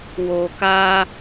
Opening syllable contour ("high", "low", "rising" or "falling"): low